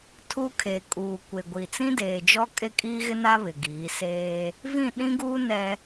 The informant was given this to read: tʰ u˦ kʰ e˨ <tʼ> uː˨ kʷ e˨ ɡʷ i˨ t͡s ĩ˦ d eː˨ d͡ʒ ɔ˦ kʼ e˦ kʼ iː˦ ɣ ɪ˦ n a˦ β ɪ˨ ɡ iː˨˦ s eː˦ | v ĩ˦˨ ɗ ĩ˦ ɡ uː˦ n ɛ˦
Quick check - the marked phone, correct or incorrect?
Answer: incorrect